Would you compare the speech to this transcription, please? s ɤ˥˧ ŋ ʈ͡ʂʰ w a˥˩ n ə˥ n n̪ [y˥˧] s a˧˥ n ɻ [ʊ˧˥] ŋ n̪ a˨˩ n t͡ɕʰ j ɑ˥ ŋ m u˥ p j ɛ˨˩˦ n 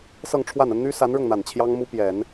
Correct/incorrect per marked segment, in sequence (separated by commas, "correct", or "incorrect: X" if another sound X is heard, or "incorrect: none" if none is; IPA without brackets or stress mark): incorrect: y˥, incorrect: ʊ˥˩